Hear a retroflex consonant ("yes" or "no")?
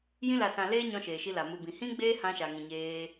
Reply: no